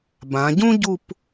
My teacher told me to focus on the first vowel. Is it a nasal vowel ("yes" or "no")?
yes